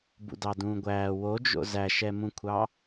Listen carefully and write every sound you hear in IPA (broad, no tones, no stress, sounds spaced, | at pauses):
b ṵ d ɑ d ũː ɡʷ æː w o d͡ʒ o̰ z æ ʃ ɛ m ũ kʷʰ ɑ